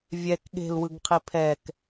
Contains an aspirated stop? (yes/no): yes